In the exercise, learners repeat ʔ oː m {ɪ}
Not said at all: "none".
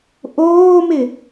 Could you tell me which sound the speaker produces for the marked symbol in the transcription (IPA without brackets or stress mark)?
ɪ